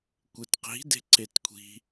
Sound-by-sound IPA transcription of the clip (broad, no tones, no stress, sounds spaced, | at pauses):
kʷ ɪ t q i̤ d e̤ ǀ e t kʷʰ i̤